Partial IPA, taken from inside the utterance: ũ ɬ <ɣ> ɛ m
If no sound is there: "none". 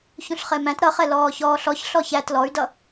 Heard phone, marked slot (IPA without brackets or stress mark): χ